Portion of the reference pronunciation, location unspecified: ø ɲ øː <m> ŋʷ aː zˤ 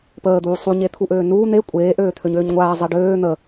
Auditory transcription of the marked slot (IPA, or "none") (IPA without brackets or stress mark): ɲ